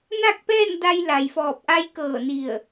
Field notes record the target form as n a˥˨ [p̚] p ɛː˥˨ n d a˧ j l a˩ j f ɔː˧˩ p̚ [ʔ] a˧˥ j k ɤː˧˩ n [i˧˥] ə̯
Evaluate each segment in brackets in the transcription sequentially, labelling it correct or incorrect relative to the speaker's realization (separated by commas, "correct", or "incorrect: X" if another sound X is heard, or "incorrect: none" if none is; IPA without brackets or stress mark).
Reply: incorrect: k̚, correct, incorrect: i˧˩